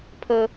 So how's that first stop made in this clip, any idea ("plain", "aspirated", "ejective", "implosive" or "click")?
aspirated